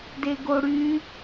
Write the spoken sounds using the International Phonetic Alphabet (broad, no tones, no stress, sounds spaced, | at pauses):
d e ɡ o ɽ y